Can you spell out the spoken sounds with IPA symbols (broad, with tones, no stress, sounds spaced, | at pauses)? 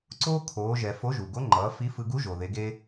ǀ oː˥ kʰ oː˩˧ ʒ ɛ˩ f o˧˥ ʒ u˩ ɡ o˧˥ ŋ͡ǃ ʌː˩˧ f i˧˥ f ɯ˧ ɡ u˧˥ ʒ o˩ ð e˩˧ ɡ e˧